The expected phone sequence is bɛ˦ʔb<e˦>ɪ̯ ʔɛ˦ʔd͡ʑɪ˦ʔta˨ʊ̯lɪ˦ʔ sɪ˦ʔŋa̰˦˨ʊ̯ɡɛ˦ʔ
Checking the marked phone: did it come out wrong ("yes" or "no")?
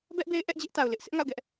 no